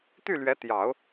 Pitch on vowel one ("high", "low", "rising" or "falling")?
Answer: falling